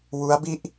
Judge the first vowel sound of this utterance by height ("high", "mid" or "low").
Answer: high